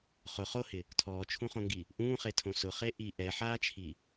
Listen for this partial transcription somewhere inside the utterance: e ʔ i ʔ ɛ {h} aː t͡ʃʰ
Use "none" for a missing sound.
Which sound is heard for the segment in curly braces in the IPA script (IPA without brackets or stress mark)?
ħ